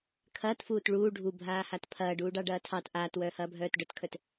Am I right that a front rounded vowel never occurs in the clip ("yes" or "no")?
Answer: no